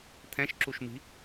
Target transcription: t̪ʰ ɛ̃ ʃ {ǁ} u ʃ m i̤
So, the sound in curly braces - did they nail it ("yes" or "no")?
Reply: yes